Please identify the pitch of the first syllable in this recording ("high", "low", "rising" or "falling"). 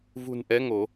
low